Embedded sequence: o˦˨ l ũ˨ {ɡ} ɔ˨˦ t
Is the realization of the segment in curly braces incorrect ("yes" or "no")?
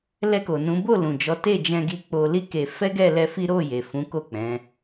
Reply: yes